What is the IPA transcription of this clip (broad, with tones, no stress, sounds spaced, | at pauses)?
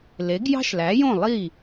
l e˩˥ ɡ j ɑ̤˥ ʃ l æ˩˥ j õ˥˩ lˠ i˥˩